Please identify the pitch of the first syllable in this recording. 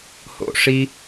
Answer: high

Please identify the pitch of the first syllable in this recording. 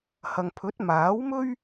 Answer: low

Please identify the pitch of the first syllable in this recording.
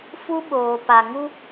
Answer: high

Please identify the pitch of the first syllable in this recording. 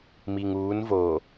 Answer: low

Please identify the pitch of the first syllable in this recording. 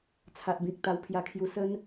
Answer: low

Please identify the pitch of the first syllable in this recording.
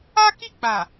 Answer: high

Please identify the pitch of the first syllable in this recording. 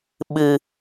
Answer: low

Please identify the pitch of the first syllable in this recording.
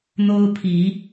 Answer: high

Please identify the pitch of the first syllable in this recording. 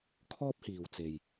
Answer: high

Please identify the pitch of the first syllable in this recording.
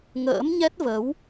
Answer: rising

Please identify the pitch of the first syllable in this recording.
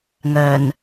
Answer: low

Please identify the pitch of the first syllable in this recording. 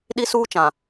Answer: high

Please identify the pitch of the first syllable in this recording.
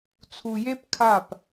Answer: low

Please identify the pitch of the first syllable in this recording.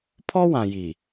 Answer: high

